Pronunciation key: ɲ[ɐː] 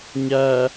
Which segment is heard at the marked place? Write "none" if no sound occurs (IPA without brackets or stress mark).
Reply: ɐː